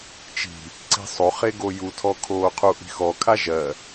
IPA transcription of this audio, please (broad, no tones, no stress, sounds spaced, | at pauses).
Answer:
t͡ʃ i̤ | ǀ i̤ sˤ o χ e ɡ o j u tʰ ɔ kʰ oː qʰ u ʔ i̤ x ɔ kʰ a ʒ ɜ